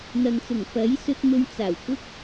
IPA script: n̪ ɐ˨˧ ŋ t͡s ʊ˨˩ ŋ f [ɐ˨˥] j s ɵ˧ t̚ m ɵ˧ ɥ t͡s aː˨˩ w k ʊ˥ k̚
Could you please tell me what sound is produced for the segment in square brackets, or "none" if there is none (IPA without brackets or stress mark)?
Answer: ɐ˨˥